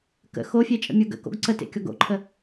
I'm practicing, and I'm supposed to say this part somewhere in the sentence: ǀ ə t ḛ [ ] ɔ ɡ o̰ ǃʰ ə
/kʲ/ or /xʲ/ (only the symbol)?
kʲ